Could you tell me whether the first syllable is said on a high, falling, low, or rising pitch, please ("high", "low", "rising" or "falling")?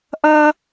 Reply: high